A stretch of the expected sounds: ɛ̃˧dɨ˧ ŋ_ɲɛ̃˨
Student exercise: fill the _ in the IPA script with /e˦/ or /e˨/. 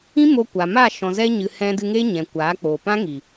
e˦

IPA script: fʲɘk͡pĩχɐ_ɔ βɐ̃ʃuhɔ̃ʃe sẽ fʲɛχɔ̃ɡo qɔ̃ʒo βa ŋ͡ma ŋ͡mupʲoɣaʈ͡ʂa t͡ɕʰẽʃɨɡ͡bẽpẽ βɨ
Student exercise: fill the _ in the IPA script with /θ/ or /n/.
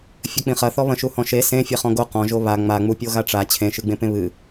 θ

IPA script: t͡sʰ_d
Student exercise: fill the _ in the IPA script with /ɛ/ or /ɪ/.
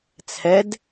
ɛ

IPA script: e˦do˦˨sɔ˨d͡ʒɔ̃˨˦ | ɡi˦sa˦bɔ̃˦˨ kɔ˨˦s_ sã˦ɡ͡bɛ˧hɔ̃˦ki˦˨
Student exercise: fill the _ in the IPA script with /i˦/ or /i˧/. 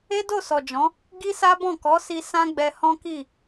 i˧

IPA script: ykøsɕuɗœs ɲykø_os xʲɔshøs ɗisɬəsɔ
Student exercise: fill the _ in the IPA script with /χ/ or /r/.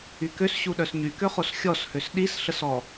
χ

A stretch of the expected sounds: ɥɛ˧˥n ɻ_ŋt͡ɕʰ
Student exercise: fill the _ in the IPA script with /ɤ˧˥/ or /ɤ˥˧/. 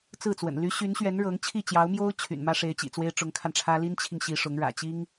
ɤ˧˥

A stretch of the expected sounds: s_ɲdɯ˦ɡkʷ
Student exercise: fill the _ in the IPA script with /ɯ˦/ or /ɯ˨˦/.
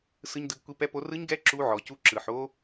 ɯ˦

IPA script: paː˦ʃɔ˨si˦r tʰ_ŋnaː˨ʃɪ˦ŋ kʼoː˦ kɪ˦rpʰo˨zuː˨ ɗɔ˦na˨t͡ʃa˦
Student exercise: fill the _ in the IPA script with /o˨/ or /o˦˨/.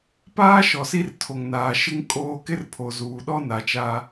o˨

